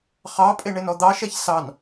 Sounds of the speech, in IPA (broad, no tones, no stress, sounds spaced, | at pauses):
χ ɑ pʼ e ɳ e n ɔ d̪ ɑ ʃ ɛ ç s ɑ n